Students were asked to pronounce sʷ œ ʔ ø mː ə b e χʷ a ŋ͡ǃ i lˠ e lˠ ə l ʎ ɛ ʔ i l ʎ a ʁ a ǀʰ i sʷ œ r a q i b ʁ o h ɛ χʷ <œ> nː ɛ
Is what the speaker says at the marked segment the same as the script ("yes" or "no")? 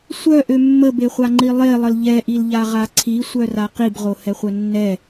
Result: yes